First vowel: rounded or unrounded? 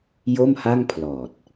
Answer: rounded